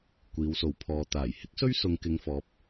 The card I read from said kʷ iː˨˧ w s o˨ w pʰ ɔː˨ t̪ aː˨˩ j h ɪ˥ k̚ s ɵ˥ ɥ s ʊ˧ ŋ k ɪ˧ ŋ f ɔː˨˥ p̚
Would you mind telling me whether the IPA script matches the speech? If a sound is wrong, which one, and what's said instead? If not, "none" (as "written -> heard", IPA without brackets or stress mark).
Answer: none